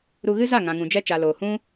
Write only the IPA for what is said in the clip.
ɾu˧ɣɨ˦ za˦˨ŋã˨ŋũ˨d͡ʒɛ˧ t͡ʃa˨loː˨ hũ˦

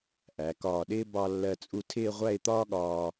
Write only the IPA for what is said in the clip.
ʔæ˩˧kɒː˧˩ɗɪː˥ bɑ˧lːɜ˧˩t͡sʼu˧tʰɪː˥˧ ʁʷæ˥˧ɪ̯t̪ɒː˥ɠɒː˧

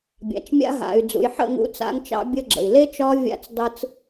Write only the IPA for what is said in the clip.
bʲa̰˨t͡ʃmʲa̰˦ ɦa̰˨y̯d͡zṵ˨jħə̰˦˨ ŋṵ˦t͡sa̰˦ŋt͡ʃɑ̰˦ bʲə˦ɡ͡ǁə̰˨i̯ le˦ t͡ʃɒ˦vʲa̰˦t͡sdˤɯ˦t͡s

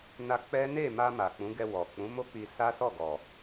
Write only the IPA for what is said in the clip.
na˧ k͡pɛ˦ ne˦˨ma˧ ma˨k͡pũ˨˦ɡɛ˧ wɔ˨ k͡pũ˨˦mo˦ k͡pi˧ sa˦sɔ˦˨ ɡɔ˨

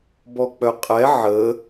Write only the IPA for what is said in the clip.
bɔk͡pœqʼɛ ʕə

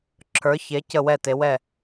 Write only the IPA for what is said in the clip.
ǁʰə˞˩˧çe˩˧ cə˧˩wɛ˧˩te˩˧wɛ˧˩

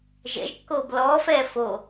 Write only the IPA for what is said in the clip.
ʒɛ̰ʒkːoːb lɔːfɛː fo

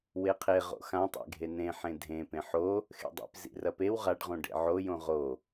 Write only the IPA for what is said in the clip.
weqʰe ʁo̰xãtˤḛɡʱe nẽ ħẽdʱẽpẽ ħo | xḛdˤḭp zḭrɐpew ʁaɖʁõ ɖḛʕojõ ʁo

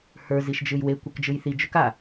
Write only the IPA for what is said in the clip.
hə˞ ziʃd͡ʒɯjwe kʷɯkd͡ʒɯjθi d͡ʒʊka

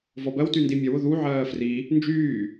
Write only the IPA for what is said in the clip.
vɔbɜwty ndimʲɐwʊ ðu ʕɜːfri | nd͡ʒyː

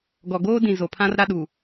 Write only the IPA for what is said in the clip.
ɡɔ˨ɡoː˦dĩ˨ zo˨pʰã˦r ɾa˦ɗu˨

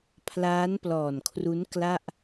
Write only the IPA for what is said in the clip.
pʰlaː˦˥nplɔː˨˩nkʰru˦˥n kla˥˩ʔ

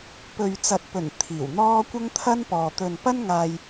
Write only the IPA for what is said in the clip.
pɵ˨ɥt͡sɐ˨t̚pɵ˨˩n t̪ʰiː˨˩wn̪ɔː˥ kʷɐ˥ŋt̪ʰɐ˥npɔː˨ t̪ɵ˨npɐ˥nŋaː˧j

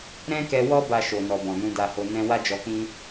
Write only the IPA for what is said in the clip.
ɾɛ̃˦kɛ˧wɔ˦ ba˧ʃo˨nɔ˨ bɔ̃˨nũ˧da˧ho˧ nɛ̃˧wa˦d͡ʒɔ˧k͡pĩ˦

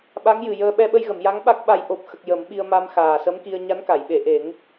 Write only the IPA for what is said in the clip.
ɓa˧˥ŋjɨ˨˩jəː˧ ɓɛ˧ɓə˧jɣə˨˩˨mja˧˥ŋ ɓa˦˥k̚ɓa˧j ʔo˨˩p̚xə˨˩k̚ jə˨˩˦mɓi˧ə̯ ma˧mxaː˨˩sə˧˥mki˧ə̯ ɲa˧˥n ka˨˩˨jɓe˨˩˨ʔe˨˩˦ŋ

